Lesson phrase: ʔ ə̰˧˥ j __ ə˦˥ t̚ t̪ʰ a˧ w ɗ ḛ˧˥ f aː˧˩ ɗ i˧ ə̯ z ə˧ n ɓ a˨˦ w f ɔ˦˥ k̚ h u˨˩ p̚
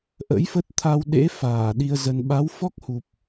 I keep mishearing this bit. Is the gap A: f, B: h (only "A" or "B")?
A